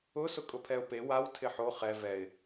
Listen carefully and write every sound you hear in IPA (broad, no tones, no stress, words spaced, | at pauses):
ʊsʊ kʼʊpʰɛʊ̯pe waw tʰɪħo χɛ vɛɪ̯